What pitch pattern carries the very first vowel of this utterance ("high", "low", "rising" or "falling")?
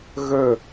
falling